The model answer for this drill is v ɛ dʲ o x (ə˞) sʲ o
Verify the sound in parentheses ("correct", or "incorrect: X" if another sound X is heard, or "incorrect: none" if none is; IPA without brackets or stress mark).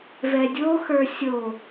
correct